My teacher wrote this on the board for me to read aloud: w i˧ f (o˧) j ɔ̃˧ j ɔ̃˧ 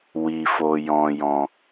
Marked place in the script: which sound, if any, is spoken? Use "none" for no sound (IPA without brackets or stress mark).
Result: o˧